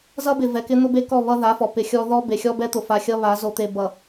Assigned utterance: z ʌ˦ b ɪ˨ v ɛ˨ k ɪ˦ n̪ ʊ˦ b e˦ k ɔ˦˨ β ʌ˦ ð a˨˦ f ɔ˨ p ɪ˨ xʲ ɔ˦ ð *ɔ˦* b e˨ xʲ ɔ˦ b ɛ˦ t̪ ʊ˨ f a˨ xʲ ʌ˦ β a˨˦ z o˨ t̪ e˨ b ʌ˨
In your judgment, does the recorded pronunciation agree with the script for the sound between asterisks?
yes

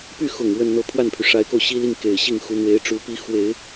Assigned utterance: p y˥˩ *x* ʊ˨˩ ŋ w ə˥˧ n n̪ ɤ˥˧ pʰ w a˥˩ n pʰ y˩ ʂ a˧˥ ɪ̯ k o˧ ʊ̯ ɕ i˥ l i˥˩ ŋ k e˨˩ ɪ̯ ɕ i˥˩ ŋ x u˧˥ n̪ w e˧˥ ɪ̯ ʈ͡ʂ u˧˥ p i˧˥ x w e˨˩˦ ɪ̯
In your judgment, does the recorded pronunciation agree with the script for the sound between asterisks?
yes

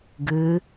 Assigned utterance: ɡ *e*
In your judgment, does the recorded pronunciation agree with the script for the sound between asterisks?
no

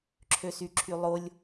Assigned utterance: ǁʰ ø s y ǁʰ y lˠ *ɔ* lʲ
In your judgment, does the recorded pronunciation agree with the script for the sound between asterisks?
no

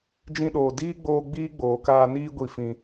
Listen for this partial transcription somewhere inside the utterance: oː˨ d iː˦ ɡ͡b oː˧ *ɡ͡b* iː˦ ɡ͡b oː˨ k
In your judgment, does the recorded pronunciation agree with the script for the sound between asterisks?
yes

